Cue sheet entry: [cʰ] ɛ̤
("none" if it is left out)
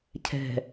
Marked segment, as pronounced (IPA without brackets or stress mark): cʰ